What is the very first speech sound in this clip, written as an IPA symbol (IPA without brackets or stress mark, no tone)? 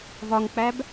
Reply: v